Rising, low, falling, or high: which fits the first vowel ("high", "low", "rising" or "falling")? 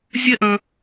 falling